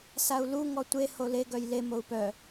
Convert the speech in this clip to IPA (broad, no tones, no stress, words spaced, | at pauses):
sau̯lu ŋɔtʷe hole ɡœjle mou̯pœ